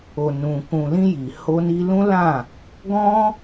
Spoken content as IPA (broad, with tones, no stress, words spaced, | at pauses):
o˨nũ˨ kũ˨lĩ˧ ji˨ ho˧ni˧lũ˦lã˦˨ | ɡɔ̃˦